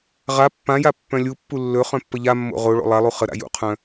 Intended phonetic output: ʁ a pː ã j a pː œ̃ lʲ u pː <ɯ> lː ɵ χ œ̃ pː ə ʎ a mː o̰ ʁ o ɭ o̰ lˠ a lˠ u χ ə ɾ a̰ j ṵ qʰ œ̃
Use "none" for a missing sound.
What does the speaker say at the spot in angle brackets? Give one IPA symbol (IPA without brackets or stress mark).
u